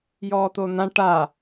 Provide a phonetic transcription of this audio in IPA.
jɔːt̪on̪ã ʈa

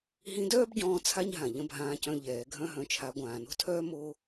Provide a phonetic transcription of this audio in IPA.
ɦĩ˧˥dœː˥bɟɔ̃ː˧ t͡sʰa˥ɲɦã˩ ʎə̃˧˥bʱãː˧cœ̃˧ ʎɛː˩˧ ɡʱœ̃˧ɦœ̃˩˧t͡ʃʰa˩˧ ɡʷãː˩no̤˥tʰœː˥ mo˥

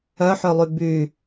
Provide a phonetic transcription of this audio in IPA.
œħølˠy by

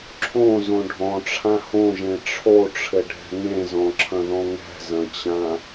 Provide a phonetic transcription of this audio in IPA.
ǁʰõzõ ɖʱɔ̃ʈ͡ʂʰã hõʒẽ ʈ͡ʂʰoʈ͡ʂʰɘɖʱɛ̤ ŋẽzɔ̃ǁʰɐ̃ðɔ̃ ŋɛ̤zɐ̃t͡ɕã

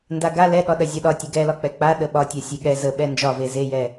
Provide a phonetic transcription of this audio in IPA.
ndaɡa lɛɠɒ ɗɐzʲɒɗɒ tʲɐɡɛlɒ k͡pɛk͡pa ɗəɓɒ tʲasʲeɠɛ zəɓɛ nd͡ʒɒve zejɛ

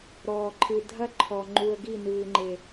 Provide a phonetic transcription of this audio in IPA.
ɾɔː˨ǃʰɨ˨ dʱɐ˦ ǃʰɔ˨ŋ͡ǃu˨ə̯ ɡi˦˨nɨː˨ŋ͡ǃe˨

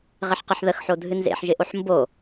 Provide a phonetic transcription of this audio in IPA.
ʁɪħqɨħðəxħo dʱɨnzḛħʒɪʔoħ mbo

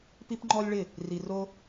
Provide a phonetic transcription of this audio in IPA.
pi˦pŋ͡ǃɔ˦lʲɭɪ˦˨ | ri˧ro˦

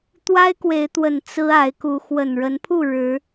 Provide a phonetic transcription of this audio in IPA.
t̪wa˦ɪ̯kwe˨˦ɪ̯t̪wə˨˩n t͡sɹ̩˦ a˨˦ɪ̯ku˨˦ xwə˨˩nɻə˨˦npʰu˥˨ ɻɻ̩˨˦

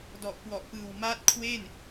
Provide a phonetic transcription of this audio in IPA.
dɔ˨˩ʔkwɔ˨˩ʔpɯː˨˩w maː˦˥t̚kʰweː˥˩n

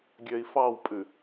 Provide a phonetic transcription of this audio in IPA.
ɡʲøi̯fɑwpʼʉ

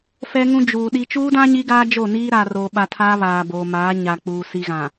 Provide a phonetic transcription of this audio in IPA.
fɛ˦ŋũ˦ d͡ʒuː˨ ɗi˦ t͡ʃuː˦dã˦ ɲi˦ɡaː˦d͡ʒo˦˨niː˦ ɾaː˨roː˨ɓa˨ tʰaː˦βaː˨boː˨maː˨˦ ɲa˨k͡puː˨ si˨ɣã˨

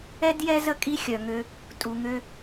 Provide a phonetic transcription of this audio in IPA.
ɛ˦djɛ˦zə˦ kʼi˦xʲœ˨ŋø˦ | tʼu˨ŋø˦

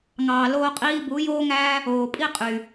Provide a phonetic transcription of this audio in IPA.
ŋɑː˨loː˧qʼiː˧bu˨˦ joː˦ŋæː˦ | oː˨pʼi˦qʼy˨

